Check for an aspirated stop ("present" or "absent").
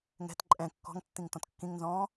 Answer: absent